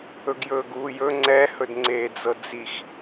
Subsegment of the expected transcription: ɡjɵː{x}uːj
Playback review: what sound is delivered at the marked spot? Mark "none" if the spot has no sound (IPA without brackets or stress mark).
ɡ